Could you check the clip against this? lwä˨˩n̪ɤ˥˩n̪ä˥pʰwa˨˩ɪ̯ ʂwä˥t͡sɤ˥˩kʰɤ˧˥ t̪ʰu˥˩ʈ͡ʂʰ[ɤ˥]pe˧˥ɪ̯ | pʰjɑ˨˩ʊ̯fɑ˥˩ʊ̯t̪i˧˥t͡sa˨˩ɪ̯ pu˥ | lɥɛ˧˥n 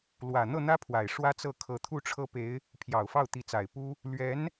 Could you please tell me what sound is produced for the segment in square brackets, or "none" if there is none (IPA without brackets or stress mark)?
ɤ˥